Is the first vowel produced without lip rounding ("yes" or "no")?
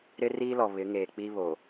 yes